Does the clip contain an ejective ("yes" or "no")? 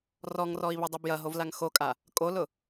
yes